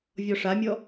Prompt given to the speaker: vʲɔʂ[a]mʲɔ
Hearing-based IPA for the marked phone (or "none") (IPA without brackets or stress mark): a